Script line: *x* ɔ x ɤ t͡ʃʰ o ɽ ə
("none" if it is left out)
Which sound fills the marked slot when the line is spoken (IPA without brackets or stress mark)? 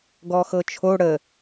ɡ